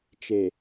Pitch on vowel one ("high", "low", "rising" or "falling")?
low